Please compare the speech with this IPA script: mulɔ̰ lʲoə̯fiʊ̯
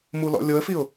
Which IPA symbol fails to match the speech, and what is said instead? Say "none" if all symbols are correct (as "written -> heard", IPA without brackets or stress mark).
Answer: none